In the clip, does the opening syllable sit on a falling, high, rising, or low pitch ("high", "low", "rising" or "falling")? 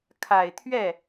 low